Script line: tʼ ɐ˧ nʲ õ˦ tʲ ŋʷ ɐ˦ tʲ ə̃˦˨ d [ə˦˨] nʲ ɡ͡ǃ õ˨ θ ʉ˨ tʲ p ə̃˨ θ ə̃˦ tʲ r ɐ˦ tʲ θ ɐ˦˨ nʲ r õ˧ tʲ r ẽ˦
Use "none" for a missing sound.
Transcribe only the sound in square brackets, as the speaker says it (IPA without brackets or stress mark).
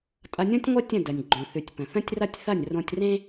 ə˨